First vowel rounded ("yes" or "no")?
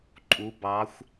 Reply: yes